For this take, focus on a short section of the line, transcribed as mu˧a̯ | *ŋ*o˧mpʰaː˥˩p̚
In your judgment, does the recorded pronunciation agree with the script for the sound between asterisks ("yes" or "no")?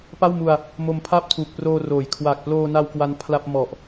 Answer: no